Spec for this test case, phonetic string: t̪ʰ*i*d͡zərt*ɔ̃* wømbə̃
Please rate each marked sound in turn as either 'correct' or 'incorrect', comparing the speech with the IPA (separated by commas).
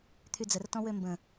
incorrect, correct